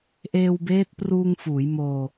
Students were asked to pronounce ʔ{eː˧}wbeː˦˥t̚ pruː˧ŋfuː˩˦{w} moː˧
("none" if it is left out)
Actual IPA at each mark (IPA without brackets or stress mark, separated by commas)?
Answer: eː˧, j